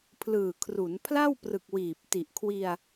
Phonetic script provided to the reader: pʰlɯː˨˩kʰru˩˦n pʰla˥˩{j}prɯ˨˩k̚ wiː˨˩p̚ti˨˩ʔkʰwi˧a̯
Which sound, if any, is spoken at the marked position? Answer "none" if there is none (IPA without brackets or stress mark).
w